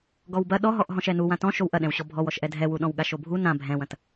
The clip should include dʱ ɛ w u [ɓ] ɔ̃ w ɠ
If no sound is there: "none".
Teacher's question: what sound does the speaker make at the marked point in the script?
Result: ɗ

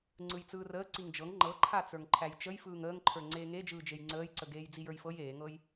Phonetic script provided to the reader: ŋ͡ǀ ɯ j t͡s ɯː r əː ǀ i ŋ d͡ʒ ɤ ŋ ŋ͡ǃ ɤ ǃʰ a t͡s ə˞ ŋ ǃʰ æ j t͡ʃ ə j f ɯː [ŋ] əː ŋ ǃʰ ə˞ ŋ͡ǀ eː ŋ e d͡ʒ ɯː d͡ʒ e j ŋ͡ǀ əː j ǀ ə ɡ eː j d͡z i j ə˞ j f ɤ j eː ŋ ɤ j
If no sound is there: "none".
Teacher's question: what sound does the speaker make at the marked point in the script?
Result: ŋ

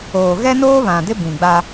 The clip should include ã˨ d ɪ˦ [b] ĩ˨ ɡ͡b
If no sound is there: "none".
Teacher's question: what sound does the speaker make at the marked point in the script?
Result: b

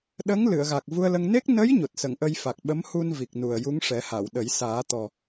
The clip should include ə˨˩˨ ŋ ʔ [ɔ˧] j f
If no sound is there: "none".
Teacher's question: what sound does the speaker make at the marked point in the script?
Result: ə˧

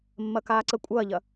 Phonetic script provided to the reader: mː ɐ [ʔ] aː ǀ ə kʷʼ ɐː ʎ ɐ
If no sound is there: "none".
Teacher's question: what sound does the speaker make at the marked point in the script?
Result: k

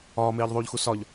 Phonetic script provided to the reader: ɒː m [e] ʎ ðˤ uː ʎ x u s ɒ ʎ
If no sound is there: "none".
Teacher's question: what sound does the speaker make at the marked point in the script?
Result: eː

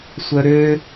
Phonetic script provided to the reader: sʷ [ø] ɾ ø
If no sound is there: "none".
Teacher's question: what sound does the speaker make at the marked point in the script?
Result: œ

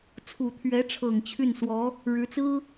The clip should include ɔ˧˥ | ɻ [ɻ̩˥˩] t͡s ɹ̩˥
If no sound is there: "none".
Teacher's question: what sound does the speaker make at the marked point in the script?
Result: ɻ̩˧˥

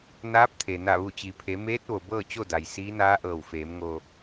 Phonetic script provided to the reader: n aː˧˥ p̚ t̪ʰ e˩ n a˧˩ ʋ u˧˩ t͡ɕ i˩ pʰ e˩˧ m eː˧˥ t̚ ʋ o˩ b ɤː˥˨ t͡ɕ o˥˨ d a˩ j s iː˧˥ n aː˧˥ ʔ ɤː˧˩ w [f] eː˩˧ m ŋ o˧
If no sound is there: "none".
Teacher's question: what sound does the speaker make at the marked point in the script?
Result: f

